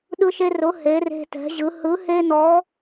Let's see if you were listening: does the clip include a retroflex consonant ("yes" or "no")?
no